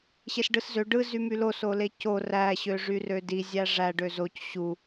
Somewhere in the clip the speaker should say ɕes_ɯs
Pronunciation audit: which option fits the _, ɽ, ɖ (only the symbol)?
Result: ɖ